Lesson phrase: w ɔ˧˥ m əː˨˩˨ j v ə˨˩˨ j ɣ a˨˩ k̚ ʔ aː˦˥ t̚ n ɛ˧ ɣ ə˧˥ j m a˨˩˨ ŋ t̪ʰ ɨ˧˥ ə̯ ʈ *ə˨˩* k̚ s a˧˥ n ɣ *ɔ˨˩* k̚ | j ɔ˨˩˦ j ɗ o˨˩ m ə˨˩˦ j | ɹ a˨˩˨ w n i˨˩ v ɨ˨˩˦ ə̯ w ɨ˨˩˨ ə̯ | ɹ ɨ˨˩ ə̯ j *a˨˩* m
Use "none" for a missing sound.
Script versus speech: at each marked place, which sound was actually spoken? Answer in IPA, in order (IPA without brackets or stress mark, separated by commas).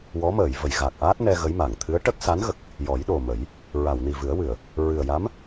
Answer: ə˦˥, ə˨˩, a˧˥